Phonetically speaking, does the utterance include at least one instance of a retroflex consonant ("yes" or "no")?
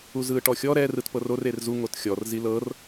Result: yes